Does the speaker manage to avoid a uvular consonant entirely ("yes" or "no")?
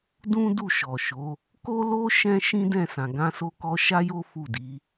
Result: yes